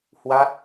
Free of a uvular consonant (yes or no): yes